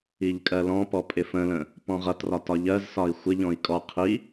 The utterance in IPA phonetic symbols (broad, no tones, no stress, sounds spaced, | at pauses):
i ʎ kʼ ɜ l ɔ̃ p ɔ pʼ ɪ f ə̃ l ə̃ | p ɔ̃ ʁ ʌ t r ɒ t ɒ ʎ ɜ z s ɒ i̯ xʷ ɪ ʎ ɔ̃ i̯ kʼ ɔ qʰ i